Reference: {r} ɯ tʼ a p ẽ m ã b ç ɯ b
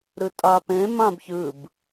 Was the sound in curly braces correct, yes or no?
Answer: no